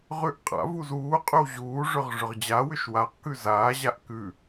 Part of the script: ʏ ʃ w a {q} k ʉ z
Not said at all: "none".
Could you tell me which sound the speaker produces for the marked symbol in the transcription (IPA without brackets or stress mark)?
q